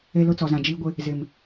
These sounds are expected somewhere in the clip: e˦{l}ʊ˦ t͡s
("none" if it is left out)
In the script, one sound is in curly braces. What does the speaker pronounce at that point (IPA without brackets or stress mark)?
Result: l